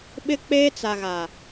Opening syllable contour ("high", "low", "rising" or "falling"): high